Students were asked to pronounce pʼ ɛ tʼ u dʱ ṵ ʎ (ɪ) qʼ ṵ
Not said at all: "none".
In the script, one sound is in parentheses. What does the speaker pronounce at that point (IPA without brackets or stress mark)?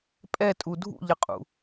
ə